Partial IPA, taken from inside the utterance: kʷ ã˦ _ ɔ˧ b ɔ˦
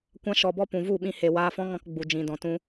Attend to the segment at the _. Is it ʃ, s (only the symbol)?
ʃ